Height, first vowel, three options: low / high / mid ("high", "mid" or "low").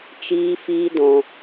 high